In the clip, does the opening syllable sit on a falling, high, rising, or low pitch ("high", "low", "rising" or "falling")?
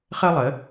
high